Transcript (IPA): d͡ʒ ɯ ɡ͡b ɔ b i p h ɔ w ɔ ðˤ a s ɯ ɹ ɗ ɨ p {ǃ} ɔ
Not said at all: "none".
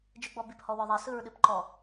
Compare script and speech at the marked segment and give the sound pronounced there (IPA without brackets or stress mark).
ǃ